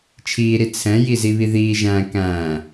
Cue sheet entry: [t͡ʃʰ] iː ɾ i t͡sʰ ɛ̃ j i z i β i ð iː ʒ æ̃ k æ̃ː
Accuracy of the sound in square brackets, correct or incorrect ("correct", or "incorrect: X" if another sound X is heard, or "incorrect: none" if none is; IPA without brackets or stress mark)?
correct